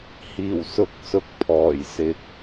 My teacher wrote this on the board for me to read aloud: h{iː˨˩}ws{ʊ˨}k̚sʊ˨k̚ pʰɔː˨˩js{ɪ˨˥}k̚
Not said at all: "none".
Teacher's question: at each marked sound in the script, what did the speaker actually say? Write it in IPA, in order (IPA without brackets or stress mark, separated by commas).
iː˨˩, ʊ˨˥, ɪ˨